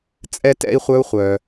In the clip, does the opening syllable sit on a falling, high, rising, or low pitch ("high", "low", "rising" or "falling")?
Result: high